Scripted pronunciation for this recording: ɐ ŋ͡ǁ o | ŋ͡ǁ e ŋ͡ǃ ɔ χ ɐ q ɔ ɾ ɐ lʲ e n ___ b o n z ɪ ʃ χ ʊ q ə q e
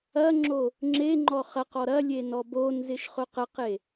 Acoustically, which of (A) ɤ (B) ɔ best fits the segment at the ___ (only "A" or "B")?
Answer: B